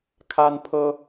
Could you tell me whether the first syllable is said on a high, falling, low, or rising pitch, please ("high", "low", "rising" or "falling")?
high